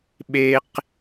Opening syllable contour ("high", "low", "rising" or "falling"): high